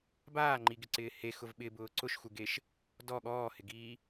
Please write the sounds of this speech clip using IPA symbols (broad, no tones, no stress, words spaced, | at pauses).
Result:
baːŋ͡ǃiɡɪǀɪː hexʊv ɓɪbʊː ǀʊʃxuɡeʃ | dɔ ɠɔːhɪɡiː